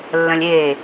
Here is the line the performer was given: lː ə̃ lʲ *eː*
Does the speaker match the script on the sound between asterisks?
yes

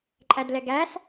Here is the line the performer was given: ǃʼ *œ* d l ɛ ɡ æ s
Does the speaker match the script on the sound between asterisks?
no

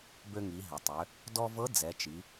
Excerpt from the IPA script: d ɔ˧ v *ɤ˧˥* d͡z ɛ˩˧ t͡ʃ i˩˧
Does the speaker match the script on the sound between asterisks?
yes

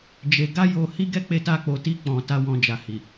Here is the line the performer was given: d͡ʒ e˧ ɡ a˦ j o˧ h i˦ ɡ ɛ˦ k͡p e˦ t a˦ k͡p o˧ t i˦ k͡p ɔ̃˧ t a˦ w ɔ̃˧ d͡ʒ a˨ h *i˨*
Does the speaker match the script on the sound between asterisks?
yes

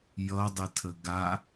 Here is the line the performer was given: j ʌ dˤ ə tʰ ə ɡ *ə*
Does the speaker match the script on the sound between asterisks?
no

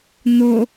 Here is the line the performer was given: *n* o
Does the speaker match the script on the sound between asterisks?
yes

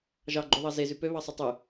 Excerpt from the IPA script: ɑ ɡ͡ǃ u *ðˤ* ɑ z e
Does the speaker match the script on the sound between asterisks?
yes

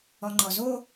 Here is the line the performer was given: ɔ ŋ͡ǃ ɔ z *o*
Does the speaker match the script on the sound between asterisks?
yes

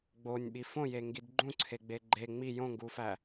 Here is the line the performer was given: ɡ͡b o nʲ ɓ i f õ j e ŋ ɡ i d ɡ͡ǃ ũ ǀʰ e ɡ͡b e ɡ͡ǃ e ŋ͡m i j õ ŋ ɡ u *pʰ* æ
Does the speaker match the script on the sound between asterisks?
no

